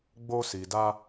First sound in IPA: ɡ͡b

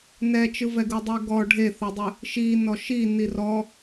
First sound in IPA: n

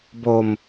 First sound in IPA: b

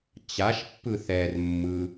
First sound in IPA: t͡ɕ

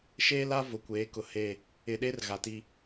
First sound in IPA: ʃ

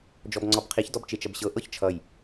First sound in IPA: d͡ʒ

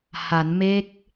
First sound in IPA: h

